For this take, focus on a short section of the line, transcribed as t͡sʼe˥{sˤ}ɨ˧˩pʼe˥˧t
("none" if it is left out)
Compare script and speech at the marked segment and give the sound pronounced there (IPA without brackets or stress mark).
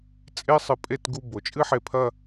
sˤ